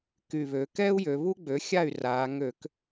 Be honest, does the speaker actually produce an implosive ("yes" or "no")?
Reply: no